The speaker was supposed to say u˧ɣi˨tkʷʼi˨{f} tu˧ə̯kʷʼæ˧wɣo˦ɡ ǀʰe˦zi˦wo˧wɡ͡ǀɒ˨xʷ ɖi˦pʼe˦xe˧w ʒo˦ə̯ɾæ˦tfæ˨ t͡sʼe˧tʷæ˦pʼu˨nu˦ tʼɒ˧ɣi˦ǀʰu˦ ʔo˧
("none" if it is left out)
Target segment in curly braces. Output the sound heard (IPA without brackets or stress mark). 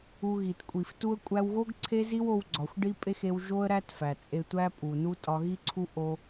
f